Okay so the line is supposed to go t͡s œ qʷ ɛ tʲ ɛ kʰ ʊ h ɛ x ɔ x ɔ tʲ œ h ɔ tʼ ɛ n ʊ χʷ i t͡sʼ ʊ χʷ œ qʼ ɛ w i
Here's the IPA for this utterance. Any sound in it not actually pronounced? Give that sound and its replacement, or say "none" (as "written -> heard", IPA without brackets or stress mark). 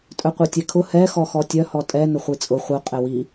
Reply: t͡s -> tʼ